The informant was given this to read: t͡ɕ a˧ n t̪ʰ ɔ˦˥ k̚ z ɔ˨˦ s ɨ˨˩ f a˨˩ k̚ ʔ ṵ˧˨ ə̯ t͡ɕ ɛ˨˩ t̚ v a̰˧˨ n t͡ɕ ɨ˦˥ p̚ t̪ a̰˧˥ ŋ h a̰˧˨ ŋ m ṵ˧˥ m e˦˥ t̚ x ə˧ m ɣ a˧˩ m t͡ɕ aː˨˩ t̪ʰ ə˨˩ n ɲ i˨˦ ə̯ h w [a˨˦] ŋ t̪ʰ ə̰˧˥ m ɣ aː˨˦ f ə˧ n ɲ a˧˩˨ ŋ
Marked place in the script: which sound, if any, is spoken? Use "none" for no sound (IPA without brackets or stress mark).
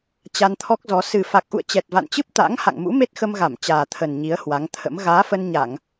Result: a˨˦